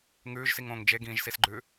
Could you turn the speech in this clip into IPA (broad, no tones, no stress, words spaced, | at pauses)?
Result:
ŋʉːʒsiŋõːŋ d͡ʒeɡĩːʒsisɡ͡ǃʉː